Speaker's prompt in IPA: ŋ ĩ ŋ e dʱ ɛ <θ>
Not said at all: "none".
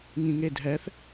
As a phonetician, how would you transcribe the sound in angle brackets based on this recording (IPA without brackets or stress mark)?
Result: θ